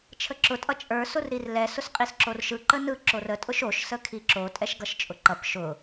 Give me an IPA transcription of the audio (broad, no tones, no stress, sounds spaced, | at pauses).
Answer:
t͡ʃʰ ə ǁ ʊ tʼ ʌ t͡ʃʼ ə˞ s ʊ r ɾ i r l ɛ s ʊ s qʼ i s ǁ o r ʃ ɯ ǃ ə n ɯ ǁ o r ə tʼ ʊ ʃ o ʃ s ə kʰ i ǁ o tʼ ɛ ʃ ɡ ʌ ʃ t͡ʃʼ ʊ ǃ ʌ p ʃ ʊ